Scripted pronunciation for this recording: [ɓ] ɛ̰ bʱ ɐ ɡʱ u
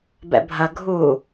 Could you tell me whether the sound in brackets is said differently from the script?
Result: yes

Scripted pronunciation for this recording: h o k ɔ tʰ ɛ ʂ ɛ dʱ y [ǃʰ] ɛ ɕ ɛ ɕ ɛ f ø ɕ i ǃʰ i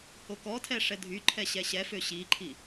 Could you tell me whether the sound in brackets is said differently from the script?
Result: no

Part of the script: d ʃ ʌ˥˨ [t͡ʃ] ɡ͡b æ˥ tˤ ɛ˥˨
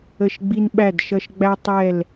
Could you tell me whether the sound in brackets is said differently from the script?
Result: yes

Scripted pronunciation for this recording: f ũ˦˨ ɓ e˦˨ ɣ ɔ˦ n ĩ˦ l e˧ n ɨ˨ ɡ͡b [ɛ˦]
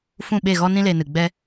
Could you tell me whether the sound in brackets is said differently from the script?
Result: no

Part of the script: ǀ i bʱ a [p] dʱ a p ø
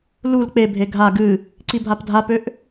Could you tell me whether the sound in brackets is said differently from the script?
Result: no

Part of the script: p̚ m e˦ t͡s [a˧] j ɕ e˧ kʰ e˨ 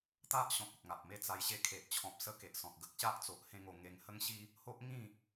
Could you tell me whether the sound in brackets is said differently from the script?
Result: no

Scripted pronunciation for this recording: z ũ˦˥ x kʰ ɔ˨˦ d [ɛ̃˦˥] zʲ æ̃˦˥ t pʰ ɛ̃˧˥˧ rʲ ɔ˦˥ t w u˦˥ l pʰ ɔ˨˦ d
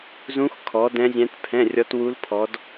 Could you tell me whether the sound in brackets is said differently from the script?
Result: no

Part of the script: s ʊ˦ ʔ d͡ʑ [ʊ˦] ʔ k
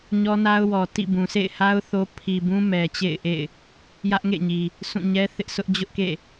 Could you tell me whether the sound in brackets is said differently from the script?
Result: no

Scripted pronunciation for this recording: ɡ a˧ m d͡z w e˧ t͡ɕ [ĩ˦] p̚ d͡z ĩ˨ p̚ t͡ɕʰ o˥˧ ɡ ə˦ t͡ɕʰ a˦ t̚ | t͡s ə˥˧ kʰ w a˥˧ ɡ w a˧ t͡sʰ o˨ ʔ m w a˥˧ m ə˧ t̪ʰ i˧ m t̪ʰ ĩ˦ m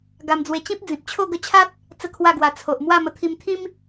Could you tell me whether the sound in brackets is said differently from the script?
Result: no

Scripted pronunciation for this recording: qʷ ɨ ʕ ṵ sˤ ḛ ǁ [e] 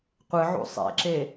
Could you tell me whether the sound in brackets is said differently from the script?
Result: no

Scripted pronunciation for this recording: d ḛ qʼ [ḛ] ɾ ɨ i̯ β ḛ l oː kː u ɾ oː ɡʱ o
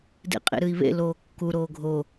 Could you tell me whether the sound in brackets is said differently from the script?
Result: no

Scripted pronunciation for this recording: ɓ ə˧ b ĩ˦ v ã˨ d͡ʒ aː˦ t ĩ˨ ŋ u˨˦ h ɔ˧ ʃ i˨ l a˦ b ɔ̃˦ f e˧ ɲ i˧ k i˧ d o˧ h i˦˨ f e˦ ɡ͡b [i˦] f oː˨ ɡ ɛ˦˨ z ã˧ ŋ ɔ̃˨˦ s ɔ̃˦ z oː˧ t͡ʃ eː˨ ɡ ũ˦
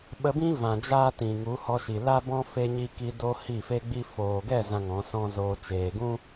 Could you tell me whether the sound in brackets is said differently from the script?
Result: no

